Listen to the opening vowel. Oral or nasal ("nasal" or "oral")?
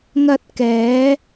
oral